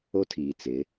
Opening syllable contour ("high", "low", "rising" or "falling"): high